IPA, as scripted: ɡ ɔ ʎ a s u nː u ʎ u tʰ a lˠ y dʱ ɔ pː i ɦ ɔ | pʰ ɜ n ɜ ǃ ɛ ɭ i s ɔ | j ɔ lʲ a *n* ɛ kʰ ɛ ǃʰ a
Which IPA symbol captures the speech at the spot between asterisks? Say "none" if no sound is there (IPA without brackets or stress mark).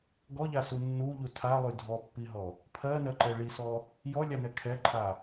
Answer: n